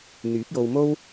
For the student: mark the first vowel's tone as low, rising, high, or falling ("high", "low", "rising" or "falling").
rising